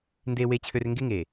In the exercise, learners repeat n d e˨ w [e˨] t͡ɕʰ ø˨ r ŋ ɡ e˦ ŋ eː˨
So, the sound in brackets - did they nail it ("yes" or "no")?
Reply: yes